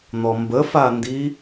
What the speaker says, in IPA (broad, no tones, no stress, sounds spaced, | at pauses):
n̪ ɔ m b ə f a n d i